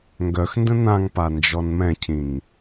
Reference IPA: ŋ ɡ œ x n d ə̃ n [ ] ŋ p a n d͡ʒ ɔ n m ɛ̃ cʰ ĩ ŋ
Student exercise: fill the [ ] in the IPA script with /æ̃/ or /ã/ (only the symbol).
ã